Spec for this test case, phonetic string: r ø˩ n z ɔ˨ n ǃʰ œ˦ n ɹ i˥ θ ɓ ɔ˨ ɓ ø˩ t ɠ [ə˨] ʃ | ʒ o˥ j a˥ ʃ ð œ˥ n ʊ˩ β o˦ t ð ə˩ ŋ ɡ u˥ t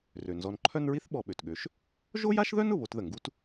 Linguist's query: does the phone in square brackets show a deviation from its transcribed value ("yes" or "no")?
yes